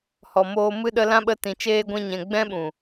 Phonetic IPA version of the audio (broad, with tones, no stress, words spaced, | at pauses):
hɔ˨moː˧ mɨ˧ɗə˧lã˧ɓə˧ tĩ˨ t͡ʃeː˧ɡʷɛ̃˧ɲɛ̃˨ ɡ͡bɛ̃˦ɓũ˨